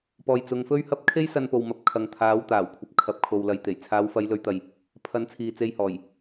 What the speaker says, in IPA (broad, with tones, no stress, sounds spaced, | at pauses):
p ɔː˧ j t͡s ʊ˧ ŋ f ɵ˥ ɥ h ɐ˥ p̚ kʰ e˥ j s ɐ˧ n p o˨ w m ɐ˨ p̚ kʰ ɐ˨ ŋ t̪ʰ aː˨˧ w t̪ aː˨˩ w kʷʰ ɐ˨ p̚ kʰ ɐ˨ p̚ kʰ o˨ w l ɐ˨ j t̪ e˨˩ j t͡sʰ aː˨˧ w f ɐ˨˧ j l ɵ˨˧ ɥ t̪ ɐ˨ j | pʰ ɐ˨˥ n t͡sʰ iː˨ t͡s e˧ j h ɔː˨˩ j